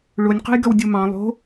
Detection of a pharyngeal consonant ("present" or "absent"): absent